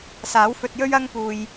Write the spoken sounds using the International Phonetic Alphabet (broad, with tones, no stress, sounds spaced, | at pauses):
s aː˨˥ w f ɵ˧ t̚ j ɵ˥ ɥ ɐ˥ ŋ p uː˨ j